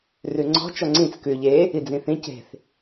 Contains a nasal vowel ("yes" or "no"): yes